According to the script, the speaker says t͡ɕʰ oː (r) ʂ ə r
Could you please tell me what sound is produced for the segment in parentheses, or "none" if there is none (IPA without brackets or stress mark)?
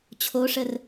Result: none